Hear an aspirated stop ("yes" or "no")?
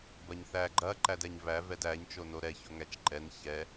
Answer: no